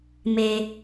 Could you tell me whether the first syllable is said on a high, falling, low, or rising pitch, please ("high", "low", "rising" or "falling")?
low